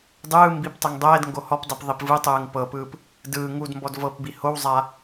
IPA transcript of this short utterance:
dˤɯː mbiptˤɯŋ dˤɛːdŋɡo hɔpdˤip ðˤipvɯtˤɯːŋ pɤpɯːp | dɯː ŋudmbɔd vɤpbi howzˤa

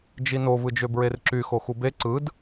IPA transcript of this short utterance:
d͡ʒino vɯd͡ʒøbɹerǁy xoxube ǀɯd

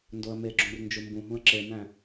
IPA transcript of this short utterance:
ndoə̯meɡ͡ǁũr nd͡ʒumbũɦũə̯ ǁemæ̃

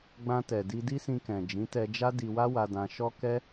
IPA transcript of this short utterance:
ɡ͡bã˧tɛ˨ di˧di˦sĩ˧kɛ̃˨ d͡ʒĩ˨˦tɛ˧d͡ʒa˦ di˧wa˦wa˧dã˧ ʃɔ˦ kɛ˦

